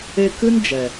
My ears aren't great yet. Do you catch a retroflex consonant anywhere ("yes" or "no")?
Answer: no